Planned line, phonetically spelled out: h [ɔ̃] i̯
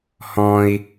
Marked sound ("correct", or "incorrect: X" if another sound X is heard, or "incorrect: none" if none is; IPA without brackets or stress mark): correct